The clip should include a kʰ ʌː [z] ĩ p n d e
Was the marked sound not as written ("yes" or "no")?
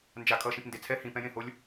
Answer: yes